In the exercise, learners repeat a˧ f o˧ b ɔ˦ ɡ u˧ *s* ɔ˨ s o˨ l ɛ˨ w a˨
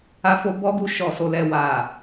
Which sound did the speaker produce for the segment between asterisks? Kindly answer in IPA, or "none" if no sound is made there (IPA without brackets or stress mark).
ʃ